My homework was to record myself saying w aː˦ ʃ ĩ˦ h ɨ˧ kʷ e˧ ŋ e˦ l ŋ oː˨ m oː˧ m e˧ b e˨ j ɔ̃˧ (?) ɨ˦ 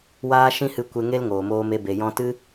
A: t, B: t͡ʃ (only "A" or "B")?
A